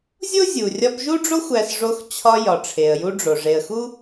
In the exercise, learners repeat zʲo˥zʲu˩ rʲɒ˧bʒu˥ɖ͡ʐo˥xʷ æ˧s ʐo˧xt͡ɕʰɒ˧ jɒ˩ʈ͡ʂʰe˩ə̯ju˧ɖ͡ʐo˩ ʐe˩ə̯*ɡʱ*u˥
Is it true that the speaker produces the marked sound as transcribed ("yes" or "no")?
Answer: no